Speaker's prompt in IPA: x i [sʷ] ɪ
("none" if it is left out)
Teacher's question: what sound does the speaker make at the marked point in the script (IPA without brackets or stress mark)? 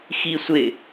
sʷ